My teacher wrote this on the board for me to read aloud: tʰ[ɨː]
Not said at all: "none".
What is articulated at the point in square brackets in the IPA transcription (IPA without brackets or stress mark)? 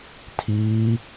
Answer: iː